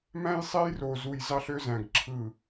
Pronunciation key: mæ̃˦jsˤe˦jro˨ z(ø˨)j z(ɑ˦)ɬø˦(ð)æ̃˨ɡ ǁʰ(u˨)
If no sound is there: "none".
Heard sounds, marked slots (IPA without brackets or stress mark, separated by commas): u˨, ɑ˦, z, ɯ˨